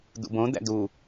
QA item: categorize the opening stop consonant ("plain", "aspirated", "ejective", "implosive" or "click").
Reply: plain